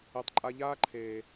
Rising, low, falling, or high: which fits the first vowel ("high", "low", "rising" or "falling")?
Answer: low